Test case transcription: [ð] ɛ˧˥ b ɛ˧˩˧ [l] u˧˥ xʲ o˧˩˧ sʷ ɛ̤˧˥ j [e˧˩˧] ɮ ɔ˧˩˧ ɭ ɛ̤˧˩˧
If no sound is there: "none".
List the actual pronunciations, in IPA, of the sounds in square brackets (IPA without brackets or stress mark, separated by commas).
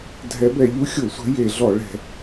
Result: dʱ, ʎ, e˧˩˧